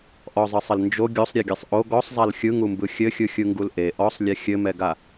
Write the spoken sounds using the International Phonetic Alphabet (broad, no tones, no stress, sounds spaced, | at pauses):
ʔ ɔ zˤ ɯ sˤ ɘ l n d͡ʒ o ɡʲ o sˤ ɾʲ ɛ ɡʲ ɛ sˤ ʔ o ɡ ɔ sˤ zˤ a l xʲ ɯ ŋ u m b ɯ xʲ ɘ xʲ ɯ xʲ ɯ ŋ ɡ u l ʔ e ʔ ɔ sˤ lʲ ɛ xʲ ɘ m ɛ ɡ a